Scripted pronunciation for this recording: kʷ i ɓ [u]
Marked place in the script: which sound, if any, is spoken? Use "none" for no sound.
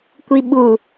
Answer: u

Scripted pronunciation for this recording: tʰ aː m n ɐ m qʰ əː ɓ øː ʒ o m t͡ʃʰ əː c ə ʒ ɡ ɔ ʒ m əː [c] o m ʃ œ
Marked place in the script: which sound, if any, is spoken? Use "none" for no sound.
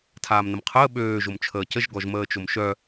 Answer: t͡ʃ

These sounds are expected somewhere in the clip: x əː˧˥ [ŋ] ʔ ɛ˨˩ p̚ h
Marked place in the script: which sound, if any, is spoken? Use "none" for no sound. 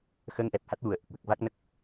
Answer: ŋ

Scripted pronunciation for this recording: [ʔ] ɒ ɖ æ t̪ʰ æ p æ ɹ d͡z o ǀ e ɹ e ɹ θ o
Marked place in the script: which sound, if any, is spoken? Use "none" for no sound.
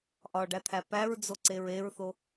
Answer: ʔ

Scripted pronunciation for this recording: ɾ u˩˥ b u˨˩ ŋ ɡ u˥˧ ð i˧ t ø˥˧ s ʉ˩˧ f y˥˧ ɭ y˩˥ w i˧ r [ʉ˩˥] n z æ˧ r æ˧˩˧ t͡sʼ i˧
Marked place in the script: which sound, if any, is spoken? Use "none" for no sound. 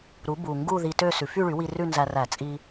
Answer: ʉ˥˧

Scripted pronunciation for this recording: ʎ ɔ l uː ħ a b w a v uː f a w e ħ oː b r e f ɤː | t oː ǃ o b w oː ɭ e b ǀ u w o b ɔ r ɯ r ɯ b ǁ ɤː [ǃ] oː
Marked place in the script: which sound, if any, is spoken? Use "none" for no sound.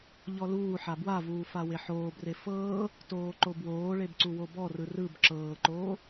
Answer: ǃ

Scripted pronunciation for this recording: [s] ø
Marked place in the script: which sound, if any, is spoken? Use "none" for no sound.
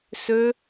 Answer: s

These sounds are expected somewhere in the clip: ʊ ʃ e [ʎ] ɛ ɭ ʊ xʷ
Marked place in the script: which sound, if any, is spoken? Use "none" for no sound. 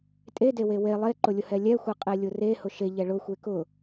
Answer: ʎ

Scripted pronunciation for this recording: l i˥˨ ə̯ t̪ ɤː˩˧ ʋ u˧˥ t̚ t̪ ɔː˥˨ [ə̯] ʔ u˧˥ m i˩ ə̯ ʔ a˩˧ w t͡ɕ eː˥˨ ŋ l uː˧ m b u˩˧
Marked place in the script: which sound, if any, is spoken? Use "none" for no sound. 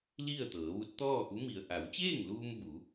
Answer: none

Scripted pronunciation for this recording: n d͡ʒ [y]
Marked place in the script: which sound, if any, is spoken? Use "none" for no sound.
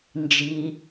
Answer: i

